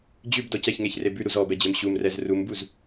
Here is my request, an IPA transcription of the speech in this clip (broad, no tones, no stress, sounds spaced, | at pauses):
d͡ʑ ʉ b d ɔ c ɛ ç ŋ e ç r e b ʉ ɾ u z ɔ b ɛ d͡ʑ e m ɕ u m r ɛ z r u m b u z